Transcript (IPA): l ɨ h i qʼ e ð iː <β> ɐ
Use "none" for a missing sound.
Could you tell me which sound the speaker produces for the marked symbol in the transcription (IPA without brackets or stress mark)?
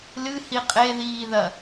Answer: ð